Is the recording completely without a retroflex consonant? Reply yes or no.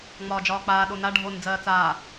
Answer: no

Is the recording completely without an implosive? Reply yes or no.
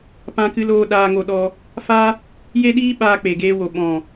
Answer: no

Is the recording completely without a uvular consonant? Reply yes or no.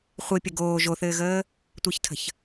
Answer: no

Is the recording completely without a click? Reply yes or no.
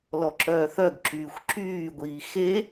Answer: no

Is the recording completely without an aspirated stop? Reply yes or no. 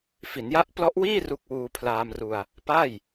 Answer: no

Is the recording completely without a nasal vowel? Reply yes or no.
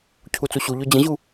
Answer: no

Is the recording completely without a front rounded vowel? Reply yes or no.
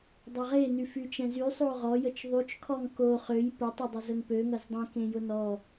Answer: no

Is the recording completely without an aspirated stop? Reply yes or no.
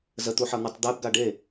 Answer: yes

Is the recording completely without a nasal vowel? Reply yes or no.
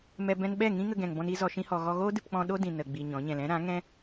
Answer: no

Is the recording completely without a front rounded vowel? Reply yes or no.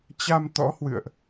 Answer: yes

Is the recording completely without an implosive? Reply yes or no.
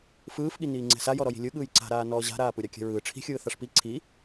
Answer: no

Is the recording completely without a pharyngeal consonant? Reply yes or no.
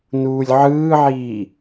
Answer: no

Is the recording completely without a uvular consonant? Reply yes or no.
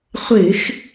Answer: no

